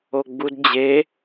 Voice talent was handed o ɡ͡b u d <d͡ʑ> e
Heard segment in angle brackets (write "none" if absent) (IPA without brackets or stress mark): d͡ʑ